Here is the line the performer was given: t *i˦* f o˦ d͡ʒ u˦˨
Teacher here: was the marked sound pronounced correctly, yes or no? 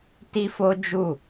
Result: yes